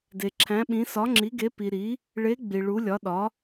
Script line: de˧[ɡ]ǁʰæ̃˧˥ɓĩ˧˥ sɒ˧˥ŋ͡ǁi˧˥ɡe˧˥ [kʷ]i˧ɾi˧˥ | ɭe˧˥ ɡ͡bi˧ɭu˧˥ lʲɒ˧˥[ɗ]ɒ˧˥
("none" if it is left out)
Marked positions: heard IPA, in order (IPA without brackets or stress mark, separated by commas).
none, p, ɗ